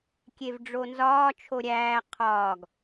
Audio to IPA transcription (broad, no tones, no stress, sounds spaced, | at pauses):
kʲ e v ɖ͡ʐ o n z ɒː t͡ʃʰ o ɾʲ æː qʰ ɒː ɡ